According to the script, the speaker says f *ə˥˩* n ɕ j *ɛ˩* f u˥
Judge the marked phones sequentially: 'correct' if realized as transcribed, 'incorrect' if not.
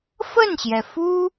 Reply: correct, correct

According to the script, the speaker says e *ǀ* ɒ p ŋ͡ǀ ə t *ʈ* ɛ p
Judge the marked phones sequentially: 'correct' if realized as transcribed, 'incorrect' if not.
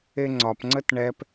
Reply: incorrect, incorrect

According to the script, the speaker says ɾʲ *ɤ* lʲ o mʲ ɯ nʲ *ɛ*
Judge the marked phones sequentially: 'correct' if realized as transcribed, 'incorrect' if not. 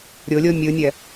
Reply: incorrect, correct

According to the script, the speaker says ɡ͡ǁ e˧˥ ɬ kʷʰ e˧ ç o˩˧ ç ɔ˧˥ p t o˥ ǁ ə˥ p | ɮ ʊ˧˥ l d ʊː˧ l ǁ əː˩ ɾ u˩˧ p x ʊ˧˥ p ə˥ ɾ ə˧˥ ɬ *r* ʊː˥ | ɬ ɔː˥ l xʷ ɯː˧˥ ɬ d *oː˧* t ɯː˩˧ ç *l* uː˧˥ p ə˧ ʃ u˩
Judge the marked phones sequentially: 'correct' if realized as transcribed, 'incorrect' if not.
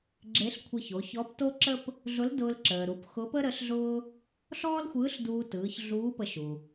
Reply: incorrect, incorrect, incorrect

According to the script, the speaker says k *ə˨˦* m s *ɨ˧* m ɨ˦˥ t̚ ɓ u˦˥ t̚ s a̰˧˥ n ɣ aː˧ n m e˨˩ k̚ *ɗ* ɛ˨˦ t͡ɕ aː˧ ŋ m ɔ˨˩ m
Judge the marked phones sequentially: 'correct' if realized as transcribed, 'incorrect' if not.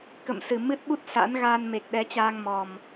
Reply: incorrect, incorrect, correct

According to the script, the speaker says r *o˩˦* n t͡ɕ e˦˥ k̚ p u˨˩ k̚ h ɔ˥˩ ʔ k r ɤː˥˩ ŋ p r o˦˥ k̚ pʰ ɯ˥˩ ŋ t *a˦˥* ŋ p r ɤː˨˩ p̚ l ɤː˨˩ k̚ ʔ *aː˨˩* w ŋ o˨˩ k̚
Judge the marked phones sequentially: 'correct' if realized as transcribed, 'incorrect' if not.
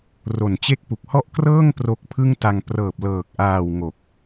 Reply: incorrect, incorrect, correct

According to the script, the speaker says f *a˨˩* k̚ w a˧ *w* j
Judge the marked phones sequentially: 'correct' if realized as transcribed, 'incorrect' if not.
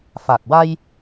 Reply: correct, incorrect

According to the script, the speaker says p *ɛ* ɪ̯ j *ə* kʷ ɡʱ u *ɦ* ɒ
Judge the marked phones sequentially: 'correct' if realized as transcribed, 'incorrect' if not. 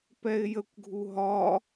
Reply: correct, correct, correct

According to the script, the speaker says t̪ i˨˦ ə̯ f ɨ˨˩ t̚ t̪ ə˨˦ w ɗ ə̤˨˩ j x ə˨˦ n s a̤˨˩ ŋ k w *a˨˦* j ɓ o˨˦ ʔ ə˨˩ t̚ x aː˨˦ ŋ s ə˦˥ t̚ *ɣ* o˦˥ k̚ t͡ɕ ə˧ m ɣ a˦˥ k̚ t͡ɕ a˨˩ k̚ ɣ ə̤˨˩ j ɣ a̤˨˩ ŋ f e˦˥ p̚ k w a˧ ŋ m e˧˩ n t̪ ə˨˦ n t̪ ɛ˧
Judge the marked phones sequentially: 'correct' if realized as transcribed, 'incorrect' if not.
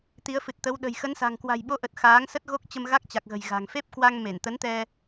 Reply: incorrect, correct

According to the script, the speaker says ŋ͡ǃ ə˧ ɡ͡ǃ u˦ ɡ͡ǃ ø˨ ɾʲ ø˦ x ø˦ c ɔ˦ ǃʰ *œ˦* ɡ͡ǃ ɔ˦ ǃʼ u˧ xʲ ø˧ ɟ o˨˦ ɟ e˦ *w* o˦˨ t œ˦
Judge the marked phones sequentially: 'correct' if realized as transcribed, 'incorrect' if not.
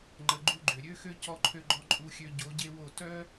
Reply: incorrect, correct

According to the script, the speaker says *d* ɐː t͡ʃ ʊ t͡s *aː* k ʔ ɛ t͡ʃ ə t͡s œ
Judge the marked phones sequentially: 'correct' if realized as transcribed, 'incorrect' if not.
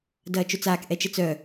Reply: correct, correct

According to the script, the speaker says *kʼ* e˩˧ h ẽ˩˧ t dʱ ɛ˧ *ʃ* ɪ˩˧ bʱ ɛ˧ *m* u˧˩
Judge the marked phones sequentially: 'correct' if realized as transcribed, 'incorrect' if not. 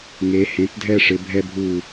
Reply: incorrect, incorrect, incorrect

